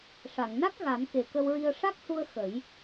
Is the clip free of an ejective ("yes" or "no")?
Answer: yes